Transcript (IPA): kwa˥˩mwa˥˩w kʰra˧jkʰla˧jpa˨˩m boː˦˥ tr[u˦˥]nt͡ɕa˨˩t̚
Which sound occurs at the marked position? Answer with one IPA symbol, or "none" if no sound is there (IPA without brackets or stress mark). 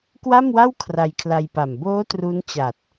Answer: u˦˥